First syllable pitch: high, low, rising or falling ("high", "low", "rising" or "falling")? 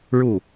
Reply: falling